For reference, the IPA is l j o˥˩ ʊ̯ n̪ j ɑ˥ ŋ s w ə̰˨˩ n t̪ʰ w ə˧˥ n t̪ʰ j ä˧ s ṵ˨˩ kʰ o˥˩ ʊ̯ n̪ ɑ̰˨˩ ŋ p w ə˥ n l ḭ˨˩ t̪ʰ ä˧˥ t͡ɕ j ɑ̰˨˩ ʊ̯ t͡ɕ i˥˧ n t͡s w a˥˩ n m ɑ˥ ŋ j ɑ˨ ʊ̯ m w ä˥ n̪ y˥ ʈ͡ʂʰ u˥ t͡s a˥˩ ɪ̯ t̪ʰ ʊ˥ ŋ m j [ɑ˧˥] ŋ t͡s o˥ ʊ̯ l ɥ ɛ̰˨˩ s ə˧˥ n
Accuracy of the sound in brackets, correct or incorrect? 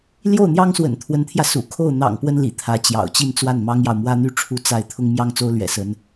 incorrect